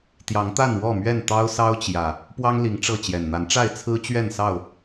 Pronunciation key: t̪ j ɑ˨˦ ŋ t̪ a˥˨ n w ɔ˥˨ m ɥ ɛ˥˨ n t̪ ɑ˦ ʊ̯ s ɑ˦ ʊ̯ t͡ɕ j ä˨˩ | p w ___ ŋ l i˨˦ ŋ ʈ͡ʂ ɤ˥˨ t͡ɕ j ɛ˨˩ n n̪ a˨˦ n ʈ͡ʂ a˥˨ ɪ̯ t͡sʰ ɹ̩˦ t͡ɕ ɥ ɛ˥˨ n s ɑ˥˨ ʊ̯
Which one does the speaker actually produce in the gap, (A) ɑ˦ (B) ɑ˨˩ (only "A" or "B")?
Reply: A